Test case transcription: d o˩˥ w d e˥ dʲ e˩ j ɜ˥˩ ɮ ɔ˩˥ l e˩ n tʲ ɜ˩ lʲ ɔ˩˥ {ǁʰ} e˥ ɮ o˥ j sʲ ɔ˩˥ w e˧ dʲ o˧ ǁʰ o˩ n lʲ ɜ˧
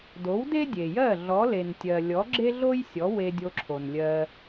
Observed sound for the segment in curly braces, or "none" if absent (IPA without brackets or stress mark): ɡ͡ǁ